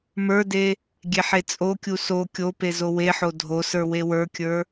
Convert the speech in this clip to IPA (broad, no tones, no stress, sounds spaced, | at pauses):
m ə˞ d e | ɡʲ e ħ e t͡sʼ o kʲ u s o kʲ o p e z o w e ħ o dʱ o s ə˞ w e w ə˞ kʲ ə˞